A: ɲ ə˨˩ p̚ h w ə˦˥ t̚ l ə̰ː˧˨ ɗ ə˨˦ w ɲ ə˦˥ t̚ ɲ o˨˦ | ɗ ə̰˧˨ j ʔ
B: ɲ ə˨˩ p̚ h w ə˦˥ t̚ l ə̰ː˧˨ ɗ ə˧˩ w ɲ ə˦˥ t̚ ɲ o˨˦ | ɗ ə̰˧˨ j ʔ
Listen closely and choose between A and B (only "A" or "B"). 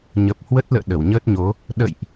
B